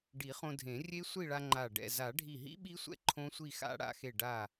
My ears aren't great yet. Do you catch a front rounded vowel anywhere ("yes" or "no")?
no